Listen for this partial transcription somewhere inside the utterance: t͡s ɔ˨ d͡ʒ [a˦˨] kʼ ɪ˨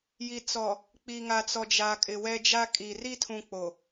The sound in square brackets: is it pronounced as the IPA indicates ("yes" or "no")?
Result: no